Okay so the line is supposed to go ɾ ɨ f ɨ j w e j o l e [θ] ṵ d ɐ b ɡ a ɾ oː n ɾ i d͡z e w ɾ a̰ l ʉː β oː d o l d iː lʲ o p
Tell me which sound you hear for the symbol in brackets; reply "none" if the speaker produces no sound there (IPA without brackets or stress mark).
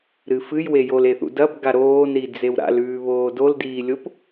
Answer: θ